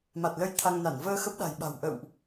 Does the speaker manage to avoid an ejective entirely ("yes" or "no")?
yes